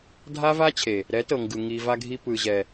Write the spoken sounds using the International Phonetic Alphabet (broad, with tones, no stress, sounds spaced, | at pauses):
dʱ a˦ v a˦ t͡ɕʰ e˨ | ɾ ɛ˨˦ t ɤ˨ ŋ ɡ ɯ˨ ŋ i˨ v a˧ ɡʱ i˧ p ɯ˨ ʑ ɛ˨